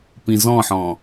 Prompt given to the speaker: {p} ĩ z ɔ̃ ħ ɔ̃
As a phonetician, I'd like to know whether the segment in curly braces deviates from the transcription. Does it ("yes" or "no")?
no